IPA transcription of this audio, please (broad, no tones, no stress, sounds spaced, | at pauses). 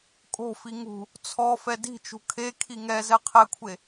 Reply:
kʼ o̤ f i ŋ ṳ | t͡sʰ ɔ f ɛ d i̤ t͡ʃ ṳ kʰ e kʰ i ŋ ɛ z ɛ qʰ ɛ kʷʰ e